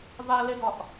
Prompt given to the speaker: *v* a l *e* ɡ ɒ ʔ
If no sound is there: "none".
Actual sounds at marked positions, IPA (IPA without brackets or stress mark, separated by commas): v, e